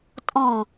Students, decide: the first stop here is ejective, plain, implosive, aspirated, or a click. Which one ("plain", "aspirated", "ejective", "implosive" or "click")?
ejective